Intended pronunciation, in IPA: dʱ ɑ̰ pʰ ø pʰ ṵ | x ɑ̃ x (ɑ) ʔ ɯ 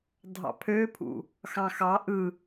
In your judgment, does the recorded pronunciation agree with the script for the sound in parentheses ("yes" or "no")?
yes